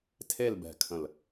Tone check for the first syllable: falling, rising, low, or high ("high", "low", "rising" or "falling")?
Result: falling